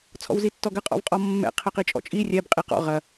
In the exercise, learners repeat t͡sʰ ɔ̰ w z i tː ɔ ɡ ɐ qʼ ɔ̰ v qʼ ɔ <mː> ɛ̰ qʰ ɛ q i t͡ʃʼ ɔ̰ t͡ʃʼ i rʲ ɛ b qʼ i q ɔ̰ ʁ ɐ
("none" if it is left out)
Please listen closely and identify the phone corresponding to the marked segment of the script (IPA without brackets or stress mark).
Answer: mː